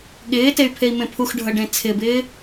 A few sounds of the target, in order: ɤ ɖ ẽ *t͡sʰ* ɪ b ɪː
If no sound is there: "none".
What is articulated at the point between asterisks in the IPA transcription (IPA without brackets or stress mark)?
t͡sʰ